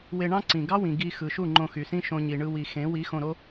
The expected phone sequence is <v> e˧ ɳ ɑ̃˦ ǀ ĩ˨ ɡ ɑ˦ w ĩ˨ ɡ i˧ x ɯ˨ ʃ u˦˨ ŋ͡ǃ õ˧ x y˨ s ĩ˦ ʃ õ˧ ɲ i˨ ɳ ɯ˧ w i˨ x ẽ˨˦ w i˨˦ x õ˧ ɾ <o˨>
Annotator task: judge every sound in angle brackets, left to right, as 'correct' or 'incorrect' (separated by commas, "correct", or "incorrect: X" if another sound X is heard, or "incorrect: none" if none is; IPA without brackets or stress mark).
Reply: incorrect: w, incorrect: o˦